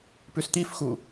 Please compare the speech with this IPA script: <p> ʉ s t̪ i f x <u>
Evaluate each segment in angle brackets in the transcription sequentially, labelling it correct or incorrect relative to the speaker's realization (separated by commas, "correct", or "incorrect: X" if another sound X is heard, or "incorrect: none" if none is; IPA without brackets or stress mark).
correct, correct